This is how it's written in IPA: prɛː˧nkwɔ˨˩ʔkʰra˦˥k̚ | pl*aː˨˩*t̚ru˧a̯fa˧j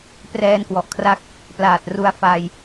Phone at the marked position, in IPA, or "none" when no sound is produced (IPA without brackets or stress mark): aː˨˩